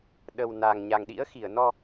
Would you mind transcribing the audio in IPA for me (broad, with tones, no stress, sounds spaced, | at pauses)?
ɗ ə˨˩ w n a˨˩ ŋ ɲ a˨˩ ŋ ɗ ḭ˧˥ ə̯ x i˧˩ ə̯ n ɔ˧